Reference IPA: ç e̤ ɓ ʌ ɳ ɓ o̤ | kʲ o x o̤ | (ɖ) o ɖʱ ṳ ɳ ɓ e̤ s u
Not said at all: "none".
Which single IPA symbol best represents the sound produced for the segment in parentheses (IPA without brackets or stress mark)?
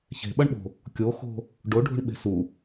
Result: ɖ